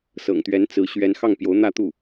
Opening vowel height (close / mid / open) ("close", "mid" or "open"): mid